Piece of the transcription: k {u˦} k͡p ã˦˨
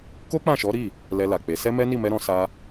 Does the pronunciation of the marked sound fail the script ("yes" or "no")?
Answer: yes